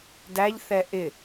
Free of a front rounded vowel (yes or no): yes